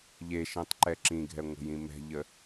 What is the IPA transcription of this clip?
ʎeʃĩtˤǃɛ ǁĩɡʱɛŋʷə̤jĩ mɛ̤ʎə

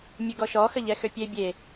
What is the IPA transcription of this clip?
mʲeɡɔʃɔ xəʎɛxøpʲe bʲe

